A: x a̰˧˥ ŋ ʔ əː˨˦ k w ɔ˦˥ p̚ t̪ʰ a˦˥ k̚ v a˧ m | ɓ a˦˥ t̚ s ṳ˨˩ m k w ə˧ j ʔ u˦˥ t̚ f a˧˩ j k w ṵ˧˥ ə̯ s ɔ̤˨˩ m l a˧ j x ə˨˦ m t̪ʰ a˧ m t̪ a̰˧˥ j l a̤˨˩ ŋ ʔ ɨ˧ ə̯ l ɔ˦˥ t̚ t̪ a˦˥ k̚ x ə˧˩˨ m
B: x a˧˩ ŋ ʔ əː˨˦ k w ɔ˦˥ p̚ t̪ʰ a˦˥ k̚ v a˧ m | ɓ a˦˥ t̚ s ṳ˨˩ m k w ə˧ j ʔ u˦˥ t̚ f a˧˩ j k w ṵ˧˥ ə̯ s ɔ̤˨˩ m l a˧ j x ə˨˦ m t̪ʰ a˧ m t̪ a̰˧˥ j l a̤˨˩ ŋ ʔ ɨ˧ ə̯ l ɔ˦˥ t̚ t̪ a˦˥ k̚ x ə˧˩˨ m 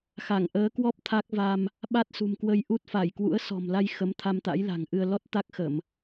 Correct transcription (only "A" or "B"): B